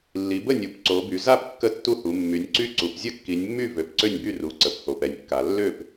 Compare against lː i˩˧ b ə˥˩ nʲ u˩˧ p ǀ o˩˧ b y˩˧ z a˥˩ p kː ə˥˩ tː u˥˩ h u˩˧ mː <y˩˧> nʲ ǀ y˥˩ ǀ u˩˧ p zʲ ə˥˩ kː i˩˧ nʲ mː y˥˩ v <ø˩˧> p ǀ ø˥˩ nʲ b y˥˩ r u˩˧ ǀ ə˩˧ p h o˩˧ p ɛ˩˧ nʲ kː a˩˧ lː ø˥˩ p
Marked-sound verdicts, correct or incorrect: correct, correct

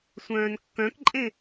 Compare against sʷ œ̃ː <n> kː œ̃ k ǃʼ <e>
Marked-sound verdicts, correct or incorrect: correct, incorrect: ẽ

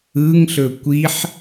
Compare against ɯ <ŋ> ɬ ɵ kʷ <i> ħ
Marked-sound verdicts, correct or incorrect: correct, correct

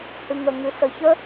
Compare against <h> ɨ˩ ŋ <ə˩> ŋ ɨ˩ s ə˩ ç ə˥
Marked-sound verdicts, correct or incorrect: correct, correct

